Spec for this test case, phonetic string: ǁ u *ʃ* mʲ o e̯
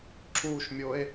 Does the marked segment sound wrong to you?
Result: no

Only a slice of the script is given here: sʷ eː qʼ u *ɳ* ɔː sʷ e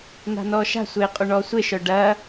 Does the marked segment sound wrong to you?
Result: no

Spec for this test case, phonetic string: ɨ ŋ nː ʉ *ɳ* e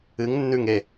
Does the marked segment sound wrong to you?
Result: yes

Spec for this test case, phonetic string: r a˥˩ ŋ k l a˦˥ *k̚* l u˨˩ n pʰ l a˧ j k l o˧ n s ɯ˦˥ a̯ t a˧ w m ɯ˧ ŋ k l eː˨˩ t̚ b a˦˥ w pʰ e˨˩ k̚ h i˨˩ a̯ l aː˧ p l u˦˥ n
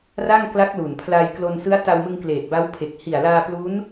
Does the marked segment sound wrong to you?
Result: no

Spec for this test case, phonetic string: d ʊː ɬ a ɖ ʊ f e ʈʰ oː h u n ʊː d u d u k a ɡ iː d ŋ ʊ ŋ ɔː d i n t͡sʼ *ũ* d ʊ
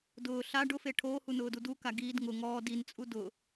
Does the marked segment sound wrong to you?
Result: yes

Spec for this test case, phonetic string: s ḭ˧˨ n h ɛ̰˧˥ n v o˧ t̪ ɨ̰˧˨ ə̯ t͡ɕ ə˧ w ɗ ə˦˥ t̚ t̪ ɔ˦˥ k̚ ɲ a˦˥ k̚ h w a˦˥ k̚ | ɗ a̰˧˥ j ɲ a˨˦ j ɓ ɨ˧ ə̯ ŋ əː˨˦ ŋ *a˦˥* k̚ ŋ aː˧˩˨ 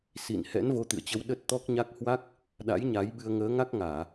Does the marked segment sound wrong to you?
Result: no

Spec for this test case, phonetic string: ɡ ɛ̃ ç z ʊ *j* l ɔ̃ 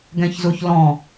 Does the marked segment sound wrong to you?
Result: yes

